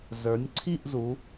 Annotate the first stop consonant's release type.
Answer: click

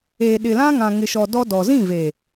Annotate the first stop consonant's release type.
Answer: implosive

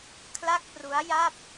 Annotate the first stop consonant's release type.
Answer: aspirated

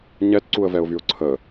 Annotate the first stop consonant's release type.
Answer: plain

